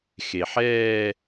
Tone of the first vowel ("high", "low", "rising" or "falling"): low